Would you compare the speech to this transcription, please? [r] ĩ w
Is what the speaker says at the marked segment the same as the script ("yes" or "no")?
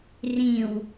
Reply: yes